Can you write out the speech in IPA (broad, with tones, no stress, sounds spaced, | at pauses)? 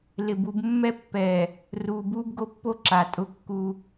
l ɪ˨ b u˦ b mː ɛ˦ pː ɛː˨ | r uː˨ b uː˦ b ɡ o˦ pː o˦ ǁ a˨ tʼ ʊ˦ kː u˦